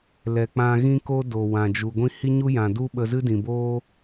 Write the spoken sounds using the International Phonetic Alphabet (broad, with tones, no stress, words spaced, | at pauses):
lɛ˨k͡pã˧ ɣĩ˦ko˦ do˨wã˨ d͡ʒu˨ɡʷĩ˦ hi˦ɲu˦jã˨du˦ ɓə˧zɨ˦dĩ˨boː˦